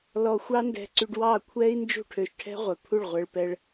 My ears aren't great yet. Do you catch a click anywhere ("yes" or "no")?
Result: yes